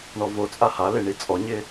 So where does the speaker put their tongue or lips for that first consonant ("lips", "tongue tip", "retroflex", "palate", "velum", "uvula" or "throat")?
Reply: retroflex